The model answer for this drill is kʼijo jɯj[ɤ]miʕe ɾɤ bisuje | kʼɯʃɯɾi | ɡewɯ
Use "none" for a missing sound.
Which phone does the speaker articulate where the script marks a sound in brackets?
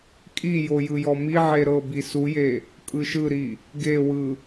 ɔ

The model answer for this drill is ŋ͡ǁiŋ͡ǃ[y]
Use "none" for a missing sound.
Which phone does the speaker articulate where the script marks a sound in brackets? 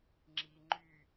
y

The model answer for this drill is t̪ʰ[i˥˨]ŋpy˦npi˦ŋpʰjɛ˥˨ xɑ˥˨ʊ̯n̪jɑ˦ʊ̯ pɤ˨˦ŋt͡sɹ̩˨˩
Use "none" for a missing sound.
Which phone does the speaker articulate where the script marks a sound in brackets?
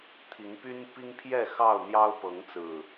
i˨˦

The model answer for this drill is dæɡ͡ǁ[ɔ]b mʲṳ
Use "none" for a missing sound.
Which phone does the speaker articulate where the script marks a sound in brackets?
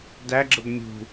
ə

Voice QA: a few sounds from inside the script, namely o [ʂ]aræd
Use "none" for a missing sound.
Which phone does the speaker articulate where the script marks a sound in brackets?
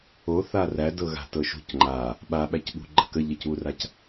θ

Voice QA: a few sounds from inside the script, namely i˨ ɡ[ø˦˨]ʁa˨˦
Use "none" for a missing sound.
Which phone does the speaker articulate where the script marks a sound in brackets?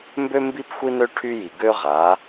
ø˦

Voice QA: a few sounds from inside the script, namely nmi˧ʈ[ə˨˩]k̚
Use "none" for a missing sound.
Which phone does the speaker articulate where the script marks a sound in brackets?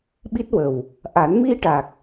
a˨˩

